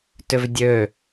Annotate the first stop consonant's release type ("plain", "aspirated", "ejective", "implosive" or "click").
plain